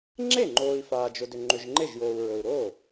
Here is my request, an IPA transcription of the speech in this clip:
ŋ͡ǁe˥˩ŋ͡ǃoː˨i̯ faː˨d͡ʒʊ˨dʏ˨ ŋ͡ǃʏ˨ʒŋ͡ǃe˥˩ʒ joː˨u̯ɹɵ˨u̯ɾoː˥˩

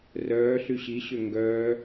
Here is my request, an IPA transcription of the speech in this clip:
rœːɬy ɕiɕø ŋɡœː

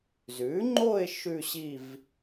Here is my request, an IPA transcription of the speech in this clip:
zʉ˩˥ŋ͡ǃo˥˧ɪ̯ ʃʉ˥˧ɕi˥˧v

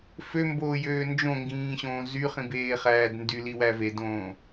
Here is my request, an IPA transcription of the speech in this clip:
fømboːjøː nd͡ʒõŋɡĩːɕõː zyχĩbeːχæːd ndyliwæ vedõː

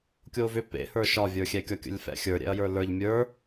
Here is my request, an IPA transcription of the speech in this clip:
kʲovʏ pḛhə˞ ʃɒvʲə˞xʲɛkʲɒ kʲə̰lʲfɛ̰xʲə˞ ɾʲɛ̰ɐ̯jə˞lə˞ʎ mʲə˞

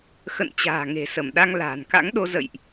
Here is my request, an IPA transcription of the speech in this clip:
xə̰˧˨n t͡ɕa̤ː˨˩ŋe̤˨˩sə˧˩mɗa˧ŋ la̤ː˨˩nka̰˧˥ŋɗo˧ zə̰˧˨jʔ

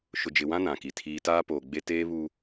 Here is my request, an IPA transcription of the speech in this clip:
ʃʊ˨d͡ʒɪ˨wã˦ nã˨ki˨tʰiː˦ taː˦poː˨ɡ͡be˦ teː˦βu˦

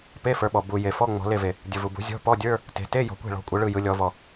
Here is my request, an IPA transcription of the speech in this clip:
pe˧˥˧fə˞˩˧ɓɔ˩ bu˩ je˩fɔ˧˥˧ ŋ͡mɔ̤˩˧le˧˩ve˩ | dʲɯ˩vu˩bṳ˩˧ zʲɔ̤˧˥˧pɔ˧˥˧dʲə˞˧˥˧ | te̤˩˧ te˧˥˧ jɔ̤˩˧kʷe̤˧˩ɭɔ̤˩˧ kʷʼɯ˩˧ɭɯ˧˩jɯ˩˧lʲɔ˩˧ vɔ˩

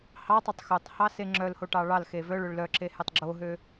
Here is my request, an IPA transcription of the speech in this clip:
hɑtˤetˤ xɵtˤhɑse ŋ͡ǁœlhoʈɑ ɭɑlxe vœɭɵɭ lœǁehetˤ ɡ͡ǁoɦø

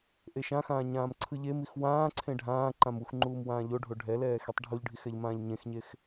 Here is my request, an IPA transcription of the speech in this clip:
ʔeʃãxãː ɲãːmǀʰɯʎemix wãːǀʰẽ ɖʱãːǃãm uxŋ͡ǃuːm wãːʎoɖʱo ɖʱɛlɛː xitˤɖʱuʎɖʱix ɛʎmãːʎɲẽxɲex

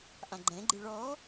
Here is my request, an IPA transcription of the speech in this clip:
ʔãɡ͡ǃɛ̃ɡ͡ǃɨ ɭɔ

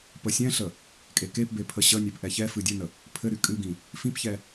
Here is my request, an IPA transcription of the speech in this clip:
pəsʲɛ̃ɬə | kʼekepbe pʰəɕənʲep ʔɛçɛfɨ dʲɘnə | pʰɘɾy kʼɨɡĩ | fĩpçɛ

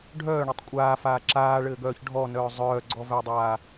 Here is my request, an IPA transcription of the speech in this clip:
ɖʱœːɳetˤ kʷʼaːfaː ǁaːɭɘːɡœːç ɖʱɔnœː zˤœːɡ͡ǀɔvædˤaː

